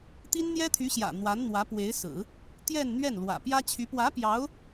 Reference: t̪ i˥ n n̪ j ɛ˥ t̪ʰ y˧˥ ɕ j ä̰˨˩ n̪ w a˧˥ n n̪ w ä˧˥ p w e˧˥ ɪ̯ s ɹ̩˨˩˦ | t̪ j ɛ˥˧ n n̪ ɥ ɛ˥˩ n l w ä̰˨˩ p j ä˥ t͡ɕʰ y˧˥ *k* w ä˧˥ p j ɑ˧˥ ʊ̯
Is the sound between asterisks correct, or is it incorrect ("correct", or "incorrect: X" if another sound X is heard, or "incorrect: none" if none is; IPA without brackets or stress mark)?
incorrect: p